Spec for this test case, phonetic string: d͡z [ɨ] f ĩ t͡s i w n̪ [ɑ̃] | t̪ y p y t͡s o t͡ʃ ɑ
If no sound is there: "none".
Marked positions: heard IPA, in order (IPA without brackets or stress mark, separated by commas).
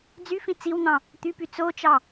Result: y, ɑ̃